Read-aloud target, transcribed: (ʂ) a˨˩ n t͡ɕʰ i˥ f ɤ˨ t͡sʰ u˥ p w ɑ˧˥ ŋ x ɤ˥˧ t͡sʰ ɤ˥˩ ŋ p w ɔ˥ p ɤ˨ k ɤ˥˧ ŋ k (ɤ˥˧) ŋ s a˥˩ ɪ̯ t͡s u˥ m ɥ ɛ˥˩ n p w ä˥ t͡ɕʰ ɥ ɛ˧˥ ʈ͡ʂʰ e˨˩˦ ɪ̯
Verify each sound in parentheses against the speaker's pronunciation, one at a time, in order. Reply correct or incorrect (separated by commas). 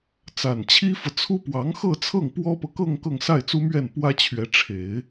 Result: incorrect, correct